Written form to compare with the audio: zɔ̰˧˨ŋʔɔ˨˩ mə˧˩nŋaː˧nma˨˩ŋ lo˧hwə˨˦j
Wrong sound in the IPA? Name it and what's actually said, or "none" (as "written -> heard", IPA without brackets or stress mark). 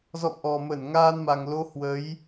none